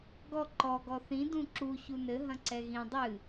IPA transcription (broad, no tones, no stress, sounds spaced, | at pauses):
ɡ ɔ ǃ ɔ ɡ ɔ θ ĩ d ũ ǁ u ç u n ɘ ɦ ɐ̃ ǀ ɛ ɣ ĩ dˤ ɨ